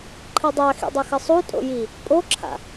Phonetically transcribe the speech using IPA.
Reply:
ǃʰɨdˤaxḭ dˤʌxɘsˤutʼo̰ ji | pʼoǁʰa̰

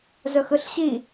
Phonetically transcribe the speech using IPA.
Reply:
zɵxɯɬɕi

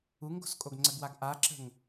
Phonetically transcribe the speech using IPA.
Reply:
uŋɡo̤s kʼoɡŋ͡ǀəɡwaɡ ʔaǁə̤ŋ

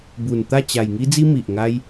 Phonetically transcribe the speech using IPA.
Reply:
bu˨˩n t̪a˥˧t͡ɕa˨˩j ŋi˧d͡zi˧ mi˨ʔŋa˦j

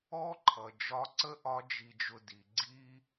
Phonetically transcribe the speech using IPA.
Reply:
ɔ˥ǃʰʌ˩ d͡ʒɒ˧˥ǀə˥ʔɒ˧˥ d͡ʒi˧d͡ʒʊ˧di˩˧ ɡ͡ǀi˥

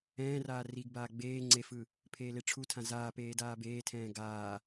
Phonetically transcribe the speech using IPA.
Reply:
ɛ̃ːraː riɡbaː ɡ͡beː ŋ͡ǀefɯ | pʰeːleʈ͡ʂʰutʰã zaːpeː daːbeːtʰɛ̃ː ɡaː

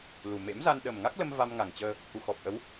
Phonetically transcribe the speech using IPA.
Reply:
lu˨˩mḛ˧˥m za˧nɗə˨˩mŋa˦˥k̚ lə˧m va˧mŋa˨˩ŋt͡ɕəː˧ | ʔu˨˩xɔ˨˩p̚ʔə˨˦w

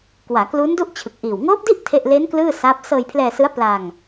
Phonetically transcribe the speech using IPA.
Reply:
kwaː˩˦klu˦˥ndu˥˩ʔ t͡ɕʰɯ˨˩k̚ʔiː˨˩w ŋoː˦˥p̚di˥˩ʔ tʰe˥˩ʔ le˦˥n klɯː˥˩saː˦˥p̚ sɤː˧jpʰlɛː˧sɯ˦˥a̯ pla˧ŋ

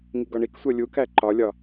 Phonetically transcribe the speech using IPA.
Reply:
ŋiɡɒɳiksʷɜ lʲukæ ǃɒlʲɒ

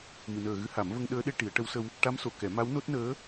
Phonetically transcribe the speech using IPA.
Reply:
mɨ˨˩˨nəː˨˩ɣɨ˧˥ ha˨˩˦mvə˧ŋ ɗəː˧˥ɗe˧ʈi˨˩˦ə̯ ʈə˧˥wsə˧w | ʈa˧˥mso˨˩˨ kɛ˨˩˦ma˧˥w no˦˥t̚nəː˧˥

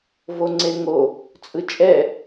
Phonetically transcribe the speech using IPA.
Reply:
voŋ͡ǀeŋo | t͡sʼɯt͡ʃʼɛ

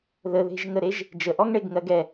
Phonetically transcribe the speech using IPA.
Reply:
ðəðe̤ʒŋəɾeʒ | d͡ʒəʔɔŋ ɳeɡŋɜɡɛ

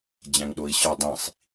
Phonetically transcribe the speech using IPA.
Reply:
d͡ʑæ̃ŋɗoi̯ɕɒ dˤĩsˤ

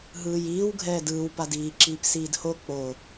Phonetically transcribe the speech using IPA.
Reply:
ɦɯːjiːw ɡʱɛːdɯːw padiːǁiːp siːdho k͡po

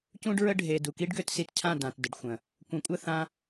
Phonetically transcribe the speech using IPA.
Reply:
cũ˦ɖɹə˦ ɖʱe˨ du˨ki˦ɖɡø˧tsi˧t cʰã˦˨dã˨t də˨ɖxʷə̃˨ | kʷə̃˨˦kʷʼə˦˨ θã˦

